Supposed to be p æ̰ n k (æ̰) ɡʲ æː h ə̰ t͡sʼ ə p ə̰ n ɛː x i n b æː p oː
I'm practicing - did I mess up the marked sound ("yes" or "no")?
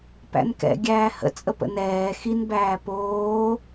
yes